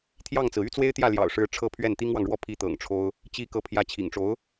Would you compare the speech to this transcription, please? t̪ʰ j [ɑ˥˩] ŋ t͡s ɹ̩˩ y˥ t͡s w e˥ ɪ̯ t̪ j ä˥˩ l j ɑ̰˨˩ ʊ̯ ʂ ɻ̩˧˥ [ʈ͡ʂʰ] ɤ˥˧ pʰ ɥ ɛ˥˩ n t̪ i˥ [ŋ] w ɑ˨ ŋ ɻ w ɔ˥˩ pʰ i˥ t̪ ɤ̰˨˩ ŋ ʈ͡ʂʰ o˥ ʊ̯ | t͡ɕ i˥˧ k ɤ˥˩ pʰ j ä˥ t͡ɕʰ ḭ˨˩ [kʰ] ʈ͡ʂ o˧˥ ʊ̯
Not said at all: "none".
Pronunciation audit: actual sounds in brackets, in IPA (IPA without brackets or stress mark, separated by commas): ɑ˥˩, ʈ͡ʂʰ, ŋ, ŋ